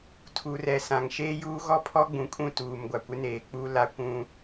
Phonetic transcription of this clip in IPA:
tʰ u˨ r ɛ˨ s ã˨ ŋ ʃ eː˦ j uː˦ ɣ ɔ˦ pʰ ɔ˦ ɡ͡b ũ˨ kʼ ũ˦˨ t uː˨ m ɡʷ a˨ kʷ ɪ˦ n eː˨ k͡p u˦ l a˦ kʷ ũ˦

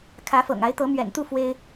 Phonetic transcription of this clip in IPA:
kʰ ä˨˦ f ɤ̰˨˩ ŋ a˨˦ ɪ̯ t̪ ɤ˨˦ m ɥ ɛ̰˨˩ n t̪ u˥˨ f w e˦ ɪ̯

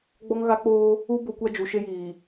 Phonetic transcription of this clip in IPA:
ɡ͡b ɔ˦ ŋ ɣ a˦ k͡p oː˦ | u˦ b o˦ kʷ a˦ d͡ʒ u˨ ʃ e˦ j iː˨

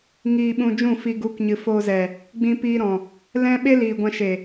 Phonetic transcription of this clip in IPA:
ŋ iː˧ ɓ ũ˧ d͡ʒ ũ˦˨ f i˧ ɡ u˨˦ k ɲ ɨ˨ f oː˧ z ɛ˨ | ɡ͡b ĩ˧ p iː˧ ɾ ɔ̃˨ | l ɛ̃˦ ɓ e˦ l iː˨ ɡʷ ã˧ ʃ e˨

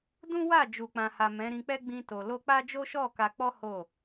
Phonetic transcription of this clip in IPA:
d ũ˦ w a˦˨ d͡ʒ u˨ k͡p ã˨ h a˨ m ɛ̃˨˦ ɾ ĩ˧ k͡p ɛ˦ ɡ͡b ĩ˧ t o˨ l o˧ k͡p a˦ d͡ʒ o˦ ʃ ɔ˦˨ k a˧ k͡p ɔ˦ h o˦˨

